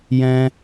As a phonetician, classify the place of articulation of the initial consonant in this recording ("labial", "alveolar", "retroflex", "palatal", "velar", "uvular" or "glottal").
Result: palatal